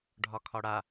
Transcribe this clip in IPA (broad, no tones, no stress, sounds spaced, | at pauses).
ɖʱ ɒ kʰ ɒ ɽ a